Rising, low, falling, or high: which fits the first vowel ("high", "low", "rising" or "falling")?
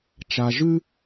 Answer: low